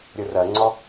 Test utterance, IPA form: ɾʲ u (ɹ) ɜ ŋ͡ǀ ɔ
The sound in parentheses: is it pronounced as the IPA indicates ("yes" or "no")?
no